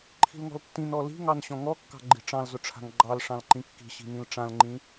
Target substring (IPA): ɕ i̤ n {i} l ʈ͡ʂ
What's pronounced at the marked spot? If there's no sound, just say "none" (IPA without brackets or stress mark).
ĩ